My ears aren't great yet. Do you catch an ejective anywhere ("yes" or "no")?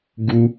no